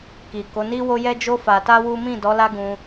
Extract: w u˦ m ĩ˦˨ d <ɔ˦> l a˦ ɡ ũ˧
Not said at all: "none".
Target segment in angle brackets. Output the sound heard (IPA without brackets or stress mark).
ɔ˨˦